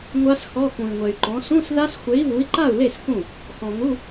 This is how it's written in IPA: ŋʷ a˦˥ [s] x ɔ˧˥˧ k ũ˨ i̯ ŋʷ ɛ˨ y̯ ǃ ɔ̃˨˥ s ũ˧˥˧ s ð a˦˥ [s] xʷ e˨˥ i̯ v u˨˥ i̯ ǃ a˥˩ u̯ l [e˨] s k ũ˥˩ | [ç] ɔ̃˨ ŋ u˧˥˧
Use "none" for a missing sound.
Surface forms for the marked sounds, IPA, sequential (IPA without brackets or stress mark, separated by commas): s, s, e˥˩, x